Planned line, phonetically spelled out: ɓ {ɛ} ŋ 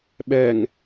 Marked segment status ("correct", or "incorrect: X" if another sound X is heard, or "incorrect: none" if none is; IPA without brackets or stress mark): correct